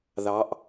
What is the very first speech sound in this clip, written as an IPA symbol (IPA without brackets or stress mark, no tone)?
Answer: ð